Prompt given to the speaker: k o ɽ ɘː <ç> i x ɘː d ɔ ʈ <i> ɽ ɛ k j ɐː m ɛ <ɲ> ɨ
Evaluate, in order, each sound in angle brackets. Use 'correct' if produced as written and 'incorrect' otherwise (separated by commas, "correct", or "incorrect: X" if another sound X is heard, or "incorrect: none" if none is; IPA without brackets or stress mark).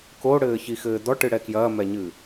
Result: correct, incorrect: ɨ, correct